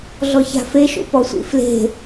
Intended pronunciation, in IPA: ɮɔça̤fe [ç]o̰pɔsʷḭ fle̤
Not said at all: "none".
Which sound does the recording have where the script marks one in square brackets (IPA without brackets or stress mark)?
ʃ